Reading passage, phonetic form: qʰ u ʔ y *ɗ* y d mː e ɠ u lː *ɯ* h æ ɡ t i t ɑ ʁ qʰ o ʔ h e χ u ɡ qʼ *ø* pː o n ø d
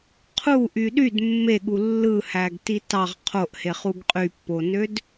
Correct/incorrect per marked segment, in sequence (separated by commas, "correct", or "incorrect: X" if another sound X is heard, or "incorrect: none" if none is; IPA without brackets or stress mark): correct, correct, incorrect: y